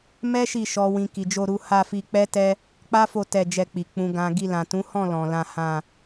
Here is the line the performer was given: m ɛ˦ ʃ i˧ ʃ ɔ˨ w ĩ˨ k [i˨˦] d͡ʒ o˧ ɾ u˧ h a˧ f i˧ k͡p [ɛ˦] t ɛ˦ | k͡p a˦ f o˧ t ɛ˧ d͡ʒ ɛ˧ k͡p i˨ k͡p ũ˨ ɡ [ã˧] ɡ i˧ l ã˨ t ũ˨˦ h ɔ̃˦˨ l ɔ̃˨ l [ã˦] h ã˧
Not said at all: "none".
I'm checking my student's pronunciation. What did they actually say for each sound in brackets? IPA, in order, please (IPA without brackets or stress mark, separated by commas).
i˨, ɛ˦, ã˨, ã˧